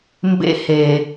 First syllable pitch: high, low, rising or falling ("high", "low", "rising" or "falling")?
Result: high